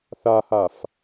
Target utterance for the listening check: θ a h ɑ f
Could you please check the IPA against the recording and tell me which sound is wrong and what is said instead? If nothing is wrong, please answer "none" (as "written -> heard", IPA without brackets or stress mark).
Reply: ɑ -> a